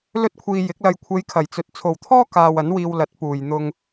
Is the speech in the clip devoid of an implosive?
yes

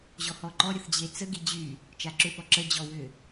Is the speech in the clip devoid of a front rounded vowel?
no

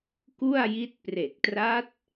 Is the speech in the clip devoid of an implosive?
yes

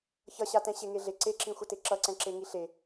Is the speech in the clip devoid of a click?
no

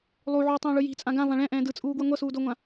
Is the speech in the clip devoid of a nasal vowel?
no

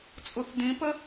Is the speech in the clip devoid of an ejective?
no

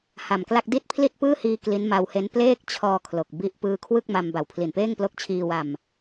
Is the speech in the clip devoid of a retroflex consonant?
yes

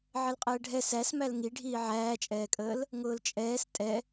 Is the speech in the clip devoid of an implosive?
yes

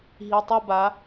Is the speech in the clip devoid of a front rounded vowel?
yes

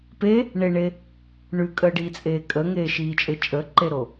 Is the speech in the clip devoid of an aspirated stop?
yes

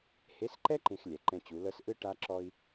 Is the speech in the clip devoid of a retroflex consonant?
no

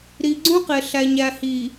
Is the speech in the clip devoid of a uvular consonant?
no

